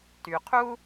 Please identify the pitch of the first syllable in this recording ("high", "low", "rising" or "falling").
low